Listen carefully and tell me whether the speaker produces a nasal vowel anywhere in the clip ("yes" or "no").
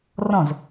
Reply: yes